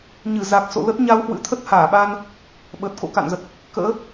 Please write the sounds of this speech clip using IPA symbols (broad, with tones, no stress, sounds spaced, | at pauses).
ɲ ɨ˧˩ z a˨˩ k̚ s o̰˧˨ l ə˦˥ t̚ ɲ a˧ w h w ɨ̰˧˥ t̪ʰ ə˦˥ t̚ h aː˧˩ ɓ aː˧ n | ɓ əː˨˩ t̚ k o̰˧˥ k a̰˧˨ n z ə˨˩ t̚ | k ə̰ː˧˥